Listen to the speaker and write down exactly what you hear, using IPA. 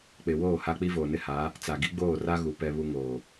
k͡p ɪ˨ w oː˦˨ h a˦ k͡p i˦ v oː˨ n ɪ˦ h a˨˦ | t͡s a˨ ɡ i˦ ɡ͡b oː˦˨ r a˦ ɣ u˨ p ɛ˨ β u˨ ŋ oː˨

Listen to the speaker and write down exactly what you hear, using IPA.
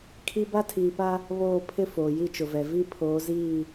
kʰ i˦ b a˦ tʰ iː˨ p a˦ | β oː˦˨ pʰ ɪ˦ f oː˨ j i˦ t͡ʃ ʊ˨ v ɛ˨ v i˦ pʰ oː˨˦ z iː˦˨

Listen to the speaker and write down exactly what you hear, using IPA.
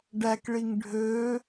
ɖ æ k ɭ i ŋ ɖʱ ø

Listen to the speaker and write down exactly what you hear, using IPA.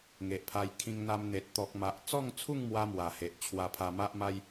ŋ e˨ ʔ pʰ a˧ j kʰ ĩ˧ ŋ n̪ a˧ m n̪ e˨ t̚ t̪ ɔ˨ k̚ m a˨ ʔ t͡s ɔ˥˧ ŋ t͡sʰ u˥˧ ŋ m w a˦ m w a˨˩ h e˨ ʔ t͡ɕʰ w a˧ pʰ a˧ m a˦ ʔ m a˦ j

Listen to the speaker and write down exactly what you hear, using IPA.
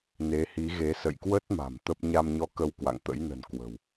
n e˨˦ h i˨˦ ɣ e˨˦ s ə̰˧˨ j k w ə˦˥ t̚ m a̤˨˩ m t̪ ə˦˥ p̚ ɲ a˧ m ɲ ɔ˧ k ə˧ w k w a̰˧˨ ŋ t̪ ə̰˧˥ j n ə̤˨˩ n k w ə̤˨˩ w

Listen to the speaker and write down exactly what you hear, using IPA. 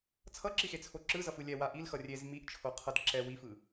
t͡sʰ ʌ ǁ i x e t͡sʰ o ǁ ɯ z ʌ f ɯ lʲ ɛ w a ʔ i l x ʌ rʲ e z m i ʔ t͡ʃʰ o qʰ ʌ d ǁ ɛ w i f ɯ

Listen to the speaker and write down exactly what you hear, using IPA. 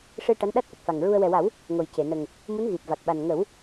ʂ ɨ˧ ʈ a˧˥ n ɗ a˦˥ t̚ ʔ ə˨˩ k̚ f a˨˩ ŋ ɹ u˧ ə̯ w ɛ˨˩ w a˨˩˦ w | ŋ o˨˩ j c e˨˩˨ n ə˨˩ ŋ | m u˧˥ n ɣ i˨˩ p̚ v a˨˩ k̚ ɓ a˨˩ n ŋ ə˨˩˦ w

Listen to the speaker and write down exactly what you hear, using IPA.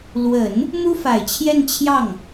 l w ə˨˩˦ n | m u˥ f a˨˩ ɪ̯ t͡ɕʰ j ɛ˥˧ n t͡ɕʰ j ɑ˥˩ ŋ

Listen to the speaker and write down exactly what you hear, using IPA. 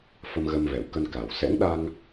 f ə˧ m ɣ ə˧ m v ɛ˧˩ w k ə˧ n k a˨˩ w s ɛ̰˧˥ ŋ ɗ a˧ ŋ

